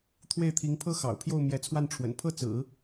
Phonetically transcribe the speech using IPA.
t̪ʰwe˥˩ɪ̯t̪ʰi˧˥ŋpʰɤ˥ xɑ̰˨˩ʊ̯pʰjo˥˩ʊ̯ mjɛ˧˥t͡sʰwa˥˩nʈ͡ʂʰwə̰˨˩n pʰɤ˥˩t͡sɹ̩˨˩˦

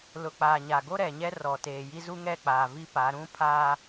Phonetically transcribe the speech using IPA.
lʊ˨k͡paː˨ɲa˨ɡo˦ ɾɛ˨ɲɛ˦rɔ˨teː˨ ji˦zu˦ŋɛ˦˨ k͡paː˨vi˦pa˨˦ ɾũ˦pʰaː˦

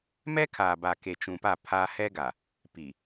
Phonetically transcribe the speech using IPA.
mɛ˦kʰaː˨ ba˨ke˨t͡ʃũ˨pa˦˨ pʰaː˦ hɛ˦ɡa˨ | pi˨

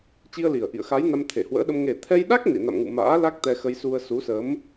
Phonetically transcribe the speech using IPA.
t͡ɕi˧ə̯li˨˩ə̯ ʔḭ˧˨ə̯xa˨˦jna˧m t̪ʰe˧˩hwə̰ː˧˥ɗə˧m ŋe˨˩t̪ʰɛ˧jɗa˦˥k̚ nḭ˧˨na̰˧˨mŋṵ˧˨ ma̰ː˧˥ la˦˥k̚ t̪ɛ˧xə˧jsu˧ə̯ su˨˦sə˨˦m

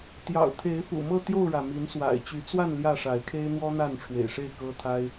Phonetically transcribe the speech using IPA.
t̪jɑ̰˨˩ʊ̯t̪ʰe˨˦ɪ̯fṵ˨˩ mɤ˥˨t̪jo˥˨ʊ̯ɻä˩ mi˨˦nswa̰˨˩ɪ̯ t͡ɕy˨˦t͡swa˥˨n ljä˥˨ʂa˨˦ɪ̯kʰe˦ɪ̯ n̪wɔ˦n̪a˥˨nʈ͡ʂʰwḛ˨˩ɪ̯ʂe˥˨ɪ̯ kɤ˦t̪ʰa˦ɪ̯

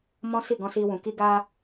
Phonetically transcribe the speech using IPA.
mɔ̃˦si˦˨ɡɔ̃˧si˧ wũ˨ki˧ ɡa˧

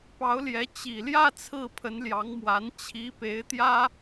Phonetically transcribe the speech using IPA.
pɑ˧˥ʊ̯ljɛ˧˥ t͡ɕi˨˩ljä˥˧ t͡sʰɹ̩˥˩pʰə˧˥nljɑ˧˥ŋmwa˧˥n t͡ɕʰi˧˥pe˧˥ɪ̯t̪jä˥

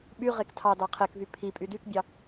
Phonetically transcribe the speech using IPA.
ɓy ʁektʰɑdɑ qʰekvy pʰipʼy dykbʲɑ

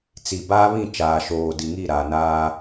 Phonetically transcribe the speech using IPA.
t͡si˨ baː˦βĩ˦˨t͡ʃaː˨ʃoː˨ di˨ŋi˦˨ɾaː˨ naː˦

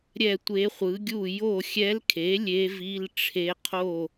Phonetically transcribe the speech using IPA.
ɾʲɛ˥˩tʷe˧˥ χʷɯ˩˥ɡʲu˥˩ jo˥˩ xʲɛ˧˥lkʰe˩˥ lʲe˧˥vi˧˥˧lʈ͡ʂʰe˧˥qʰo˥˩

